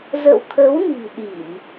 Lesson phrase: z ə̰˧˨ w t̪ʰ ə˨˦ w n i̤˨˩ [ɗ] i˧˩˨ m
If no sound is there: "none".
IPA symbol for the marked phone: ɗ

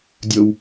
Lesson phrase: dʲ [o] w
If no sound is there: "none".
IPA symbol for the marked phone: o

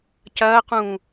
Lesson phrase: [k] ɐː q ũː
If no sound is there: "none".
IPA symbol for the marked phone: c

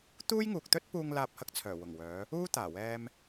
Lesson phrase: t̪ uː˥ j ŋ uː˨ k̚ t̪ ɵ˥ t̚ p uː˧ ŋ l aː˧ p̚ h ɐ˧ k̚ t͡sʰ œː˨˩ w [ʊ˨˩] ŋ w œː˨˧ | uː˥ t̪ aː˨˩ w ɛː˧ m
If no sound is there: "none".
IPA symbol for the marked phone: ʊ˨˩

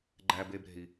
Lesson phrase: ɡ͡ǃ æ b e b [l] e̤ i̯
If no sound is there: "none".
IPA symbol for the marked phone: ɾ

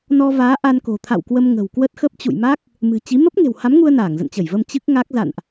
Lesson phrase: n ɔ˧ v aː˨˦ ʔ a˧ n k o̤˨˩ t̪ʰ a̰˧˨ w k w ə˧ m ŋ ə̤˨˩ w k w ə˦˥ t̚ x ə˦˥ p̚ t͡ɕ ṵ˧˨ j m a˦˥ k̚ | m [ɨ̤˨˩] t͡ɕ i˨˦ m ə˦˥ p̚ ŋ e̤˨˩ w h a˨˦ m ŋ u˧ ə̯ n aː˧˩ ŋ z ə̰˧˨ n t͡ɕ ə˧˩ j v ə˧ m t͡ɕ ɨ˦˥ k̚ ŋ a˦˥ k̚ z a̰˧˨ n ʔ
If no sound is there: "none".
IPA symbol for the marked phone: ɨ̤˨˩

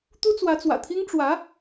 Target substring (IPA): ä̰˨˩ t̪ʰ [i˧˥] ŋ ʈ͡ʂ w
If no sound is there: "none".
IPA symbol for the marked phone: i˥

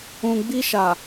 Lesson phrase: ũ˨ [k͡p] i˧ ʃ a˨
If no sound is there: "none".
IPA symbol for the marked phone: ɡ͡b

